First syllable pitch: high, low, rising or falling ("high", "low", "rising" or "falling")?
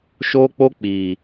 high